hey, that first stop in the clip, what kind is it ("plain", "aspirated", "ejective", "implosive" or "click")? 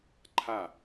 click